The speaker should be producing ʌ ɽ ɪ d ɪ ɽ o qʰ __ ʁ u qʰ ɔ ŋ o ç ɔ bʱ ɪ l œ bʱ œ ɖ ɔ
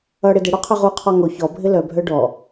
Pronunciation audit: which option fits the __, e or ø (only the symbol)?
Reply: ø